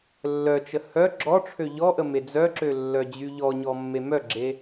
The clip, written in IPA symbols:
lː œ t͡ʃ ə h œ ɡ͡ǁ ɔ ʈ͡ʂʰ ø ʎ ɔ ʔ ə m e d͡z œ ǁ ø lː œ d͡ʑ y ʎ ɔ ɲ ɔ mː e m œ ɡ͡ǁ e

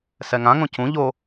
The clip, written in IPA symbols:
s ɛ ŋ ã ŋ õ c ũ ʎ o

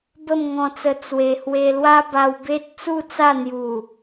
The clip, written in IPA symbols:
b ə˥˧ m ŋ ɔ̃˧ t͡s ə˧ t͡s w e˨˩ h w e˧ l w a˦ b a˧ w b e˦ t̚ t͡s u˥˧ t͡s a˥˧ n̪ j u˨˩

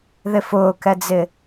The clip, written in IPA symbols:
ð ɪ f ʊː k ɛ d͡z ɪ

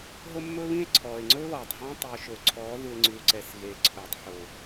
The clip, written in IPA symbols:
ɦ o˦ mː ɵː˦ β ĩ˦ e̯ ǀʰ ɔː˨ e̯ ŋ͡ǀ ɵː˦ β ɔː˨ tˤ ɦ ɔ̃ː˦ tˤ i˨ o̯ ʃ ɵː˨ ǀʰ ɔː˨˦ ð u˨ e̯ ŋ͡ǀ ʉː˨ ǀ ɛ˨ s ɣ e˨ ǀʰ ɵː˨ tˤ ħ o˨

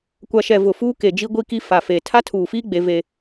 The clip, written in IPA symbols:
kʷ a˨ ʃ ɛ˨ v ʊ˨ f uː˦ k e˨ d͡ʒ i˦ ɡʷ i˦ k i˦ f a˨ f e˨ tʰ a˦ tʰ uː˨ f iː˦ ɡ͡b e˦ v e˦

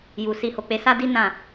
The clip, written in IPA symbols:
j u˨ s i˧ h o˨ k͡p e˧ s a˦ d i˦ n ã˦˨

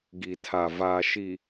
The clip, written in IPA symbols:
ɡ i˨ tʰ a˨ v aː˨ ʃ i˨

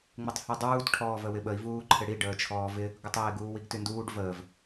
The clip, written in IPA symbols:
ŋ͡m ɪ tˤ h y dˤ uː t ʈʰ ɔː v ə w ɪ ɓ ə i̯ v uː ǃʰ ɪ ɽ i ɖ əː t͡ʃʰ ɔː v ɪ | ɡ ʊ tˤ ɪː ɡ uː w i ɡ t y n d uː ɖ v əː v

